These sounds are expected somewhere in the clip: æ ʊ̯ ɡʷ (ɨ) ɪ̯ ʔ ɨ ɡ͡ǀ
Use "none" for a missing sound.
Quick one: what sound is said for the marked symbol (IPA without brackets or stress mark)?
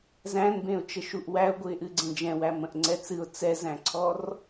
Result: ɨ